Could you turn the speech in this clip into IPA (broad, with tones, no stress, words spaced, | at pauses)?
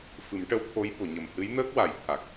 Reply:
fɨ˨˩˦mʈə˧˥w t̪ʰo˧˥jɓo˨˩˨ɲə˨˩m hɨ˧˥jnəː˦˥k̚wa˨˩˦j t̪ʰa˨˩k̚